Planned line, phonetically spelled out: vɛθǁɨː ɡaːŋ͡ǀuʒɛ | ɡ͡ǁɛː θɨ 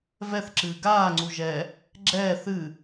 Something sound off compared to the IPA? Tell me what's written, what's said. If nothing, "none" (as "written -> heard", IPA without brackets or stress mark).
none